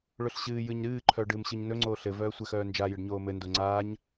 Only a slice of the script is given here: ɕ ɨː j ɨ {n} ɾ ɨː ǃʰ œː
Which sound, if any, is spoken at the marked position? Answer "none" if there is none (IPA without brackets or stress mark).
ɲ